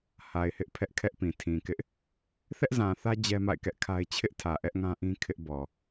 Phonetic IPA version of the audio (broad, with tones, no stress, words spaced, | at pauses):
ha˨ɪ̯hɪ˦ʔ pʰɛ˦ʔkʰɛ˦ʔpĩ˨ tʰĩ˨kɪ˦ʔ | θɛ˦ʔzã˨θä˦ d͡ʑɛ˦ma̰˦˨ɪ̯kɛ˦ʔkʰa˦ɪ̯ t͡ɕʰɪ˦ʔtʰä˨ ʔɛ˦ʔŋã˦ʔĩ˦ kʰɪ˦ʔbɔ˨